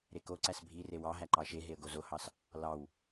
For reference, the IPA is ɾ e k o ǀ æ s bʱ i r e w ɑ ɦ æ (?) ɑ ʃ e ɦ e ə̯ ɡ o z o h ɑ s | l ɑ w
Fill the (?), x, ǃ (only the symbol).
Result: ǃ